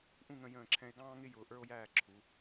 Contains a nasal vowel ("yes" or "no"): yes